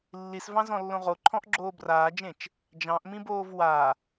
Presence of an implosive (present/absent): absent